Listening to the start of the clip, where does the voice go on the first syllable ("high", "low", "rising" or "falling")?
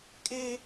high